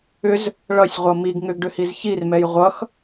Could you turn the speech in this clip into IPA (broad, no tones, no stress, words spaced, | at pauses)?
ʏz | ɭʌsʲʁʷʌ miɡ ŋʏɡɖʏhiz çirmɛj ʁʷʌx